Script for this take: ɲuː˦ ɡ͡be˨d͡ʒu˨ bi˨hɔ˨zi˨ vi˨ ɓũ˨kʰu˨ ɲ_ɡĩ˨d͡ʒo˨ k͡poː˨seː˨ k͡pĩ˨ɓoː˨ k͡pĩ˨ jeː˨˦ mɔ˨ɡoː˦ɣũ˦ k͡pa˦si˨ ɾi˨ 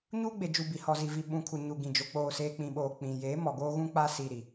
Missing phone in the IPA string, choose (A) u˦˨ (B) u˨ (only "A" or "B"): B